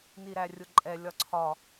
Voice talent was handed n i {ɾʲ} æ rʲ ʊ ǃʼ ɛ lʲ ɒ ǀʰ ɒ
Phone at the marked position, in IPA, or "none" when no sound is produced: ɾ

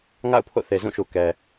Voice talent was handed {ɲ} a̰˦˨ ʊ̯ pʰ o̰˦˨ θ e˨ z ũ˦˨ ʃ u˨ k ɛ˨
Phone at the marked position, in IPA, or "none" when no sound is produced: ŋ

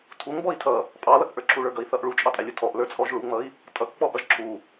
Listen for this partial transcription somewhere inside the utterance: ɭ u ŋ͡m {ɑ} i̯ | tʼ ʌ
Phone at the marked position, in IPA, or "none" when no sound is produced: ʌ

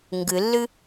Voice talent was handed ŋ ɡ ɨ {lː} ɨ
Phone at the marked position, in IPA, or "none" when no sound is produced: lː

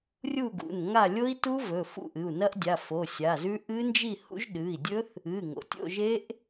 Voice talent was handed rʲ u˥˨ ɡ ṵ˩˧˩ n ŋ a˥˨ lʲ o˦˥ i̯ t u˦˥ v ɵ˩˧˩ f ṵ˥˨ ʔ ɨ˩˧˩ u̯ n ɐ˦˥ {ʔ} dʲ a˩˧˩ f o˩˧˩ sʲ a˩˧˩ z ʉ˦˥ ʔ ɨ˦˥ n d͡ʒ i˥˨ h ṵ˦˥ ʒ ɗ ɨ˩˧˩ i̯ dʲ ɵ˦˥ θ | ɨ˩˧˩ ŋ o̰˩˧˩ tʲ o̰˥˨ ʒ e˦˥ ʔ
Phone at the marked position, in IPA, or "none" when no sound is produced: ʔ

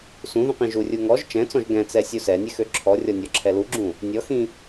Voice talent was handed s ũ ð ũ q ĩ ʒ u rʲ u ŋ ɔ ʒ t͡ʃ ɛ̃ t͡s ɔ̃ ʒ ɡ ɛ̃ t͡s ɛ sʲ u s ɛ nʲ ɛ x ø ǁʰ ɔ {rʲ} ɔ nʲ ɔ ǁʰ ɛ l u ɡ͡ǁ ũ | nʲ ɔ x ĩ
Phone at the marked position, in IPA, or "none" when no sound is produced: rʲ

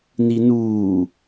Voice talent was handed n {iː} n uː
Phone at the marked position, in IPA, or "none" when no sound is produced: i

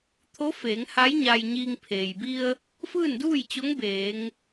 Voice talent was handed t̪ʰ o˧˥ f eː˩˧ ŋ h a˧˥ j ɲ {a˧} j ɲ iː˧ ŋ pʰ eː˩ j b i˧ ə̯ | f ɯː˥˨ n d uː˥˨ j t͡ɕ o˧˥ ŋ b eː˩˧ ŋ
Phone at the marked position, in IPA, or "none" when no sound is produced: a˧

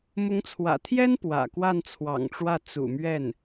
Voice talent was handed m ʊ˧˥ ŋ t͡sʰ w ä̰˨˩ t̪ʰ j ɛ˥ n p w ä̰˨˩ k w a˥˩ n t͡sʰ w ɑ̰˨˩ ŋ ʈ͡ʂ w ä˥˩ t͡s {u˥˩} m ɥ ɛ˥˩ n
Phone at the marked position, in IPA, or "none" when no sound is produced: ṵ˨˩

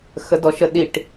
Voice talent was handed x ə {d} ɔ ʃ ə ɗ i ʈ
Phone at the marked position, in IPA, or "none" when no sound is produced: d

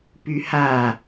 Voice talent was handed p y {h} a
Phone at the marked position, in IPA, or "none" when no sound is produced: h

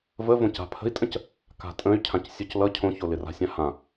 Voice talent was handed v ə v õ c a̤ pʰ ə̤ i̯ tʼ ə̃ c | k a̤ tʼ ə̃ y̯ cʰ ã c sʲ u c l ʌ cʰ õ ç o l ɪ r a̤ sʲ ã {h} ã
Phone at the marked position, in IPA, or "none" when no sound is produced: h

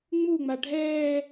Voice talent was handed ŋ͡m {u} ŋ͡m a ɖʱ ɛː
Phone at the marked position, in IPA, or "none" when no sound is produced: u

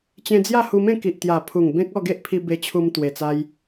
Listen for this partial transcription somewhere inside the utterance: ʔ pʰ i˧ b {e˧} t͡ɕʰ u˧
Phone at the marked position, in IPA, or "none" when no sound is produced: e˧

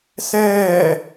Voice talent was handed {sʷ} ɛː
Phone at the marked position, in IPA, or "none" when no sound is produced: s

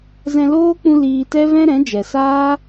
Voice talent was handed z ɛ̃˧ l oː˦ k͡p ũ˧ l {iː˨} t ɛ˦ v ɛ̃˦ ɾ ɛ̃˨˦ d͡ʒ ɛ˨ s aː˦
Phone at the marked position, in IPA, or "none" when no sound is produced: iː˧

